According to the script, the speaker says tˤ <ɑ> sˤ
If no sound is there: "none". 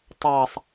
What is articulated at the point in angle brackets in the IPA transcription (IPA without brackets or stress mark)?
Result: ɑ